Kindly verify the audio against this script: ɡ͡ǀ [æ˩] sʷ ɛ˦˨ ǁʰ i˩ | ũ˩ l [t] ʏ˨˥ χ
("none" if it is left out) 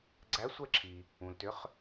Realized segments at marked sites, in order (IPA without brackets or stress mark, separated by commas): æ˨˥, t